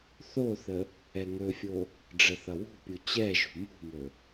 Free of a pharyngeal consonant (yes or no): yes